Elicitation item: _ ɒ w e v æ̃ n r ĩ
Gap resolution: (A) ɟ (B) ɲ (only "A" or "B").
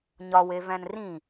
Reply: B